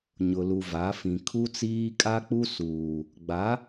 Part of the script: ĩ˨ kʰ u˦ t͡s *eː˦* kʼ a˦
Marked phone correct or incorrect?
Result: incorrect: iː˦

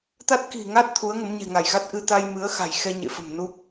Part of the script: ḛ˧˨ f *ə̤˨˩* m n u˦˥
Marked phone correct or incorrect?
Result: correct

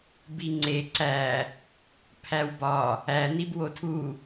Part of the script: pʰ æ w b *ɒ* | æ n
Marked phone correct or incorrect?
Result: correct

